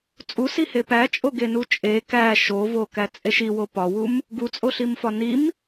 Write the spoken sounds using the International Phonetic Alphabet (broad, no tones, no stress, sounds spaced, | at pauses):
t͡sʼ u s i h e p æ t͡ʃʼ o ɡ e n u t͡ʃʼ e k æ ʃ o v o k æ t͡sʼ e ʃ i w o p ɒ w u m | ɡ u t͡sʼ o ɬ i m f ɒ n i m